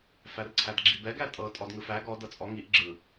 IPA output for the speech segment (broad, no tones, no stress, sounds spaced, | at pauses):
f æ r ǀʰ æ d ɡ͡ǁ i b ɛ ɡ æ tʼ ɤ tʼ ɔ d ŋ ɯ f æ ɡ ɔ d ɤ t͡sʼ ɔ ŋ i ʔ ɡ͡ǁ ɯ